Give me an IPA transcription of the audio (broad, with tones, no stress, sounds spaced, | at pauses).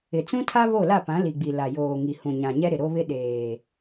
ɪ˨ t͡s ũ˦ tʰ a˦ β o˦˨ l a˦˨ p ã˨˦ l i˨ ɡ͡b i˨ l a˨ j oː˨ ŋ i˨ h ũ˨ ɲ ã˨ ɲ ɛ˦ ɾ ɪ˨ ɾ o˦ β ɪ˦ ɗ eː˨